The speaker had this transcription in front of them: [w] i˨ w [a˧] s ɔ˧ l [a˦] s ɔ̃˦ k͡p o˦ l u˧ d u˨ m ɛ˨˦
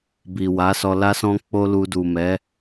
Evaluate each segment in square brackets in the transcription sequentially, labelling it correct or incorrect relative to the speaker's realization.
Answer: incorrect, incorrect, correct

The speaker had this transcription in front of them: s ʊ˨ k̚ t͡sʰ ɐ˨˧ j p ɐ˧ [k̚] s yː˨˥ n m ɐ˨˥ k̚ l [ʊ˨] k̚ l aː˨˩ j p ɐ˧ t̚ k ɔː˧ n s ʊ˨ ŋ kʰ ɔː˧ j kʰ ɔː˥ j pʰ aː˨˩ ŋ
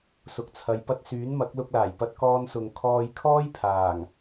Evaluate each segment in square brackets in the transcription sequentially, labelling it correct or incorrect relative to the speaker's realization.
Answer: incorrect, incorrect

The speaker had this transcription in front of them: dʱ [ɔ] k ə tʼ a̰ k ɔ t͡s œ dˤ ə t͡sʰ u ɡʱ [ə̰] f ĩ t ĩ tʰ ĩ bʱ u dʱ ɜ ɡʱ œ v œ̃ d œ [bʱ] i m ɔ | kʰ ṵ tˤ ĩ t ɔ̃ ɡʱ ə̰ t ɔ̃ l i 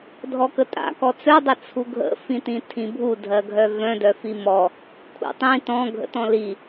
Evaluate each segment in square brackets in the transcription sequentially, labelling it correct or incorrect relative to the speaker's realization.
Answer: correct, correct, incorrect

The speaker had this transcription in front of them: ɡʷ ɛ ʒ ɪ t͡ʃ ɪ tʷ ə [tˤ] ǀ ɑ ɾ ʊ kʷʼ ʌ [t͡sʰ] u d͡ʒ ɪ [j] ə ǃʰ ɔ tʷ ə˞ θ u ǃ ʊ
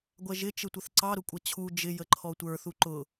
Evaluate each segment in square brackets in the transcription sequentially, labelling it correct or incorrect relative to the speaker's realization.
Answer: incorrect, incorrect, correct

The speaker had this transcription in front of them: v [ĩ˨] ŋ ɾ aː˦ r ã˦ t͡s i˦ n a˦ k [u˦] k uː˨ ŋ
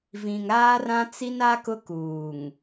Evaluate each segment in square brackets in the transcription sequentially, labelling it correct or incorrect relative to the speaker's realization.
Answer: correct, incorrect

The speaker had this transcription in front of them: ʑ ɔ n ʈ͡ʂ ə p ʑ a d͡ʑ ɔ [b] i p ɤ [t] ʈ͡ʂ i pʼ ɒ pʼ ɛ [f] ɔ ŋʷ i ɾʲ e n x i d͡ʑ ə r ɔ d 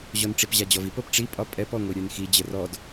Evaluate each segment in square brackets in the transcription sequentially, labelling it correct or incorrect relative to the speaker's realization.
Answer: incorrect, incorrect, incorrect

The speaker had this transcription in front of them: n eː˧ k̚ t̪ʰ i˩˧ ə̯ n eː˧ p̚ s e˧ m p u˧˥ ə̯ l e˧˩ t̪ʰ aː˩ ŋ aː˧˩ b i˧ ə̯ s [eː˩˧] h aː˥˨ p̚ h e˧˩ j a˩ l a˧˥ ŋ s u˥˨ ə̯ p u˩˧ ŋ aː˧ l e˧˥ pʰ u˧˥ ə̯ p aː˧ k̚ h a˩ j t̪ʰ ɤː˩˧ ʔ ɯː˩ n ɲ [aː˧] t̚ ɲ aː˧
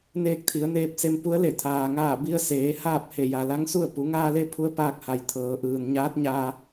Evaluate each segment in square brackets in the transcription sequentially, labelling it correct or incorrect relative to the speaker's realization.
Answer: correct, incorrect

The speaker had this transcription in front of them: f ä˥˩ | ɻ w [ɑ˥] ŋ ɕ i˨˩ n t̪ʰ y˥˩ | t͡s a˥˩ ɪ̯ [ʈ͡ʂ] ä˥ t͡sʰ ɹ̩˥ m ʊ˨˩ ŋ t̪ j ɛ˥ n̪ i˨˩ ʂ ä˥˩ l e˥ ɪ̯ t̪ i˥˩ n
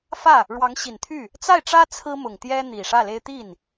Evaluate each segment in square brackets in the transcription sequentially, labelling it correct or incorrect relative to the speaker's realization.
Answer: incorrect, correct

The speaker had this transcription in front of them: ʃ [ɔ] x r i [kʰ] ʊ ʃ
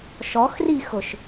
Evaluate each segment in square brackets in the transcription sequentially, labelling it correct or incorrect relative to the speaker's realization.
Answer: correct, incorrect

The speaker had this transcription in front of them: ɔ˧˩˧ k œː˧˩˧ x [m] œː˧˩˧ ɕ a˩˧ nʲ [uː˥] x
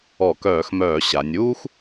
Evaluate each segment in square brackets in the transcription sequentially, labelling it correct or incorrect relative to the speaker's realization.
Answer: correct, correct

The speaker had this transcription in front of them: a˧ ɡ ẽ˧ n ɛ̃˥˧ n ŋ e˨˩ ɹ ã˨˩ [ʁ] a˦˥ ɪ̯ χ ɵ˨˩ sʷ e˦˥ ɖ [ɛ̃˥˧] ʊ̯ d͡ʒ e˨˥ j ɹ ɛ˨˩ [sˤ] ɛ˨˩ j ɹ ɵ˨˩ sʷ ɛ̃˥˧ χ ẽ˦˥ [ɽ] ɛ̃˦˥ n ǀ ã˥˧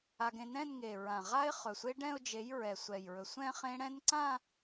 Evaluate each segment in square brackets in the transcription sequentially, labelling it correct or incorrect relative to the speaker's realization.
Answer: correct, correct, incorrect, correct

